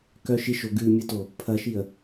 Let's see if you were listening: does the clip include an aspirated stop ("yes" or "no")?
yes